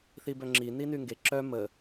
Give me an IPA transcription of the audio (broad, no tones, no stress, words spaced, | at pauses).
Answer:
θibœŋ͡ǁi ninyŋɡe ǁœ mə